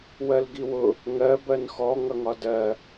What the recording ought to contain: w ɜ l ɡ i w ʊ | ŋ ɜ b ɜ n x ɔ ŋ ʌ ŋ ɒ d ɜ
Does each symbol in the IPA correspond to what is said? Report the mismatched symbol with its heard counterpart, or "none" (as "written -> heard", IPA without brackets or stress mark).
none